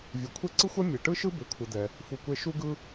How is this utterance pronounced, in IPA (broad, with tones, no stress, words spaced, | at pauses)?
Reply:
vʲɯ˩kʷʰe˥ ǀɯ˥xʷɛ˥ mʲe˩ʈɯ˥ʃɯ˥ be˧kʷʰɯ˧d̪ɛ˧ | fu˧kʷe˥ ʃu˥ɡɯ˥